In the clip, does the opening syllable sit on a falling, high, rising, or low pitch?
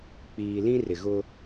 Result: low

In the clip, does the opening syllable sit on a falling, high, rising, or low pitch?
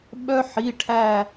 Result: high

